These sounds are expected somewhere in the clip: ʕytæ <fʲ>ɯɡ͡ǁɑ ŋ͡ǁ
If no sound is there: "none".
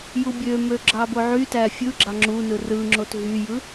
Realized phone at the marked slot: fʲ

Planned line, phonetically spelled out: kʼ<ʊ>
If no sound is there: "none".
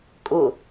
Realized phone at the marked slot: ʊ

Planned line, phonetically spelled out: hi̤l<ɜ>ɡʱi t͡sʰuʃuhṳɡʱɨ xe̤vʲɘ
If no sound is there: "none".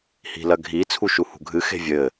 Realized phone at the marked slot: ɜ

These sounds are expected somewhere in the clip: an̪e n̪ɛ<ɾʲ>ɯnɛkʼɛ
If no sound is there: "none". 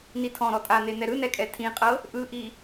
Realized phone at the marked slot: ɾ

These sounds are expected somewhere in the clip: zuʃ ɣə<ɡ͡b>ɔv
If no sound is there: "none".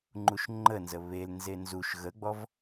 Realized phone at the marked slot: ɡ͡b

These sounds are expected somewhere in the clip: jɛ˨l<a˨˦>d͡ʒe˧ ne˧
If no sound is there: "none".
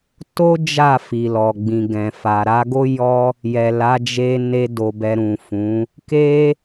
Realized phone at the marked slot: a˨˦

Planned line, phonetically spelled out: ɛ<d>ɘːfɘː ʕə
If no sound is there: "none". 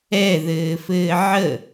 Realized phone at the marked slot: ð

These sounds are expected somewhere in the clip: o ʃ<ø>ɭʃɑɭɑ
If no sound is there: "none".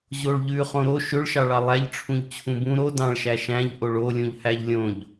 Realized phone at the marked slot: ø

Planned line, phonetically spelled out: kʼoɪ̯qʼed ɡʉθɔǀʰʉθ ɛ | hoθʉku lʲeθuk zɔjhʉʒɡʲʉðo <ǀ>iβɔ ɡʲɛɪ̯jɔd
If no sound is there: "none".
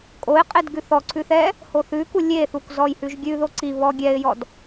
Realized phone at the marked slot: ǀ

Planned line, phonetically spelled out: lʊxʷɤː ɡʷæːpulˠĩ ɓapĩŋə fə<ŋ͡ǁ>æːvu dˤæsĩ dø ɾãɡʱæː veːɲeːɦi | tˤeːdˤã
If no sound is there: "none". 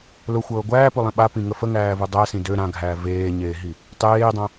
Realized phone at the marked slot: ŋ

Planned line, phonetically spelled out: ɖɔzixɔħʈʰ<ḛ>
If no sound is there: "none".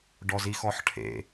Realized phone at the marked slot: ḛ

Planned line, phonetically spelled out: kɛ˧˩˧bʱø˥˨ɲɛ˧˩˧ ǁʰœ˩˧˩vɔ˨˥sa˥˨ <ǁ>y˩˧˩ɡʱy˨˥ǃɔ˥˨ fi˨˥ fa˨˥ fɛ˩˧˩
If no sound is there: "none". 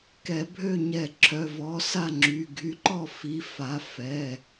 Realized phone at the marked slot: ŋ͡ǁ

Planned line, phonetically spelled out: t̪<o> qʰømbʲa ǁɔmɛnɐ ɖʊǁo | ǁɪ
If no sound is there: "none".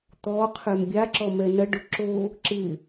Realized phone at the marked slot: ɔ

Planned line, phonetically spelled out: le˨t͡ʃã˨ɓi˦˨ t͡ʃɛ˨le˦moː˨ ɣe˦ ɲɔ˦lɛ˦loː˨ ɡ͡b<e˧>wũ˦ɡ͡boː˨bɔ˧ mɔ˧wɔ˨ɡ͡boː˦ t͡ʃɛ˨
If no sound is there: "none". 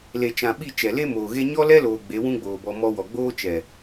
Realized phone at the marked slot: e˨˦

